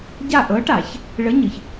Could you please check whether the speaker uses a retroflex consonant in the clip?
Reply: yes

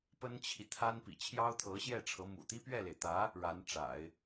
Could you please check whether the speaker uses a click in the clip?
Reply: no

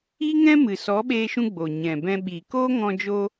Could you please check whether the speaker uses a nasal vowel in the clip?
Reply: yes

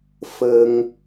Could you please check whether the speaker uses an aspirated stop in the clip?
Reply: no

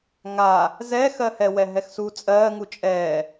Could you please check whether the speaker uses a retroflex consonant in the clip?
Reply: no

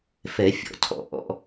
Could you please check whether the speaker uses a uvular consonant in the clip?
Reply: no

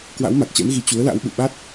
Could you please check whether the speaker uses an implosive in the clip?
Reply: yes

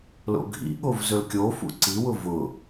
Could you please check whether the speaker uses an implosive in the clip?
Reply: yes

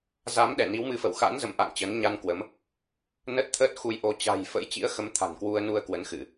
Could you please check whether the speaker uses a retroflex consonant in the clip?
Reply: no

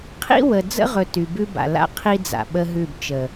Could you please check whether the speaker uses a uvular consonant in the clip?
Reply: yes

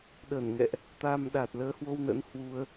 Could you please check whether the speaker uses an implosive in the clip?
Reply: yes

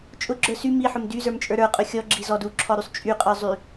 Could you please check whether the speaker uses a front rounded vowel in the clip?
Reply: yes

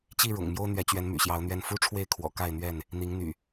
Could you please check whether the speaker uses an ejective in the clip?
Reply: no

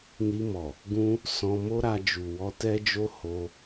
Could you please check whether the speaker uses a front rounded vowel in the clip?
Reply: no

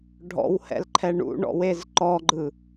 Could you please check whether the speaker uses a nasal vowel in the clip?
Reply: no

